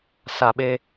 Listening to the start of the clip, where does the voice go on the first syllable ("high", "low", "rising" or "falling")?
low